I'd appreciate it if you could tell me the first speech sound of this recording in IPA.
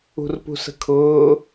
ṳ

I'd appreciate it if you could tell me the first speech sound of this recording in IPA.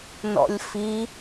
n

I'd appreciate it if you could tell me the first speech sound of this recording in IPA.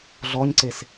ɮ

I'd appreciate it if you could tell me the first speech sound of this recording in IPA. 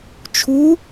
t͡ʃʰ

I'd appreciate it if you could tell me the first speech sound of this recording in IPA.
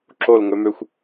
ǁ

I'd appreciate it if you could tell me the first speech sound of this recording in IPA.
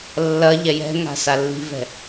lː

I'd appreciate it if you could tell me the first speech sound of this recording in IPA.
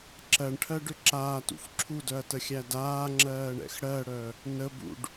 ǁ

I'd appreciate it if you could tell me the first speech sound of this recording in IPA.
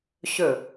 ɕ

